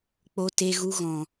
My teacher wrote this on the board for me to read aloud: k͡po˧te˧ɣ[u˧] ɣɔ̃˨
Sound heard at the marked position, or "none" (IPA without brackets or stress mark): u˧